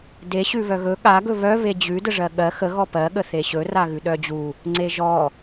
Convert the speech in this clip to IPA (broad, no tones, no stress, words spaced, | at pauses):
deɕʉ βœɣɵ ɠa ɡɵβœ βed͡ʑʉdəʐɜ ɠɜ xə ɣɔpɜɠə θeɕɵ raɣʉɗœd͡ʑu | ŋ͡ǀeʒɔ